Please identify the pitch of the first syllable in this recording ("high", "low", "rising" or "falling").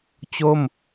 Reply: falling